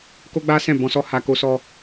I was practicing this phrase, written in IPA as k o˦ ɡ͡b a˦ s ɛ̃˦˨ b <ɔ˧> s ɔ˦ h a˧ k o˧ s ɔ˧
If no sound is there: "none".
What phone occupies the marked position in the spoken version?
ɔ̃˧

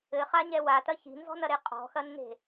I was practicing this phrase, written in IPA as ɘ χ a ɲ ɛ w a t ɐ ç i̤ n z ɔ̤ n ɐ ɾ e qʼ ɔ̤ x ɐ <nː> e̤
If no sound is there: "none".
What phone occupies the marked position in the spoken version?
nː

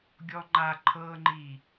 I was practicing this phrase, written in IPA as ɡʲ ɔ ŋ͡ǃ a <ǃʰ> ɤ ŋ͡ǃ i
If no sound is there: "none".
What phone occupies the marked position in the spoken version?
ǃʰ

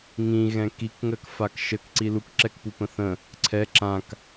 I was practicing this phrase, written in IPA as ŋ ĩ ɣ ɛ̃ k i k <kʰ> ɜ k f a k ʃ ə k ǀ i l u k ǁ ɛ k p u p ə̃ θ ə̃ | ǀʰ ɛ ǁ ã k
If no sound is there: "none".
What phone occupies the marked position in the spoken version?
ŋ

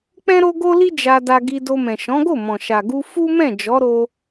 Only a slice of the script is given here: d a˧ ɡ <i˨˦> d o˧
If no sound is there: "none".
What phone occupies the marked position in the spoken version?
i˧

